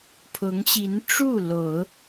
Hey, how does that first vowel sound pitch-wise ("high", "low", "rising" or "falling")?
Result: rising